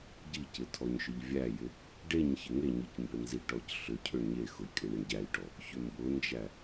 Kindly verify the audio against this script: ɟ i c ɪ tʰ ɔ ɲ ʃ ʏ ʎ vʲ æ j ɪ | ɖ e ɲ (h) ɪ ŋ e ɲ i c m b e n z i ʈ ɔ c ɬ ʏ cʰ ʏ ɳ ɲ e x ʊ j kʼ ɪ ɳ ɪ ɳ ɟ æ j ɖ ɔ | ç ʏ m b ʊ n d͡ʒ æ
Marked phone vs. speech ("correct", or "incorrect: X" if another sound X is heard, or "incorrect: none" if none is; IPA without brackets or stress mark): incorrect: ç